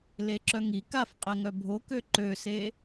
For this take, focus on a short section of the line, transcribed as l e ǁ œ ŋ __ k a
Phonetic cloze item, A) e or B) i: B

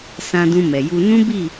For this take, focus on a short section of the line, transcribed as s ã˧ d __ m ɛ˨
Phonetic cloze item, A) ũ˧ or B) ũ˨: A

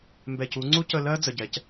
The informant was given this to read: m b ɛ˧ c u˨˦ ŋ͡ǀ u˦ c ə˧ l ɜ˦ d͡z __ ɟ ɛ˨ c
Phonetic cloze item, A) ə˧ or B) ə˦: A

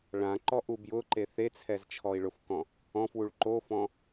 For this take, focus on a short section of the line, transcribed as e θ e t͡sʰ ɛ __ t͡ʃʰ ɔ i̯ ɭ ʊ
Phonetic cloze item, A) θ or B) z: B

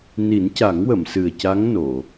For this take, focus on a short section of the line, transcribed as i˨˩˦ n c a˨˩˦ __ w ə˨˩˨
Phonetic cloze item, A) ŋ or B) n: A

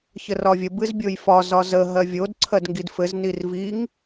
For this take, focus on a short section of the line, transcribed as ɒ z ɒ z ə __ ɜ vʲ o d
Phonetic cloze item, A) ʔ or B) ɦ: B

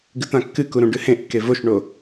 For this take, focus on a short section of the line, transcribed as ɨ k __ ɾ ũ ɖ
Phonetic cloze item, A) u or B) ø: A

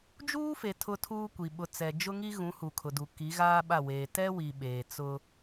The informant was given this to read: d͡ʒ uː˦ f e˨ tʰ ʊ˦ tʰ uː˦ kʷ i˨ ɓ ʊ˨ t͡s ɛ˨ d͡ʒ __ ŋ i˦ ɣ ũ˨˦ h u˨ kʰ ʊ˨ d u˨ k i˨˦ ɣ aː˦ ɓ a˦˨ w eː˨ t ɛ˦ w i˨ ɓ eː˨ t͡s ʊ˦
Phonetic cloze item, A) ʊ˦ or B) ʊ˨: A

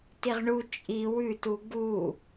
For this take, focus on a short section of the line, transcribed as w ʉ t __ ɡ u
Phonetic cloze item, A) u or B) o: A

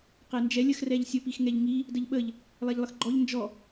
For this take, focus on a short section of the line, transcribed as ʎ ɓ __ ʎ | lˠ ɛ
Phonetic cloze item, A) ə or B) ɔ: A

